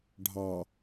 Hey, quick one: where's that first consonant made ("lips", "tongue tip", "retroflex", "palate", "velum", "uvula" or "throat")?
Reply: retroflex